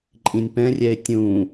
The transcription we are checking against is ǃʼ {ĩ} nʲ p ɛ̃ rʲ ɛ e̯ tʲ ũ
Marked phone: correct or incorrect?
correct